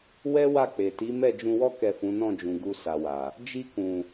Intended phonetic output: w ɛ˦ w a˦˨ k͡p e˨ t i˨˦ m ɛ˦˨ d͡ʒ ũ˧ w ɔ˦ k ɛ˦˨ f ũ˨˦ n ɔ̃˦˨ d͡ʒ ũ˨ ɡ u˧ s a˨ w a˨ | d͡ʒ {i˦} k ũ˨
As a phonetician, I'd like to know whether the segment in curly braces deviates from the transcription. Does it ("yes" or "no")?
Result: yes